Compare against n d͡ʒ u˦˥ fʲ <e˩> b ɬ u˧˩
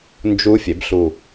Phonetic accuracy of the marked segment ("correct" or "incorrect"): incorrect